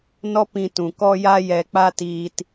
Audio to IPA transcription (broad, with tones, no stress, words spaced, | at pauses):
nɔ˦pĩ˧tũ˨ kɔ˧ja˧jɛ˨k͡pa˧ tiː˨t